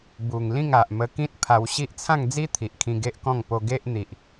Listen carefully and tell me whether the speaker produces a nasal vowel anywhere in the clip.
yes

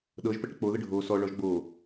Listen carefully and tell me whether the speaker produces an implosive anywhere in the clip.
yes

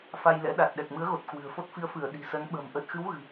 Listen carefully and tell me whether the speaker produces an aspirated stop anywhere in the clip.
no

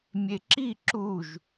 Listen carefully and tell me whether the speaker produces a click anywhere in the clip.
yes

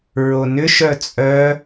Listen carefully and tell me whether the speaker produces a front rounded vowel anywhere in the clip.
yes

